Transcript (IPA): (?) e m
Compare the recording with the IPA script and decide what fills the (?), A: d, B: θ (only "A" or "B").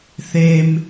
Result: B